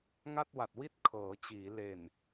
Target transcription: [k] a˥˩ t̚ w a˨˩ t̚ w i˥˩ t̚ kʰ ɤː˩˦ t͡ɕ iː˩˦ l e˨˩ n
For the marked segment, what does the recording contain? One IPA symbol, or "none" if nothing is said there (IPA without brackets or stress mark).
ŋ